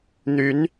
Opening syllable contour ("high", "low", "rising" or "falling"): rising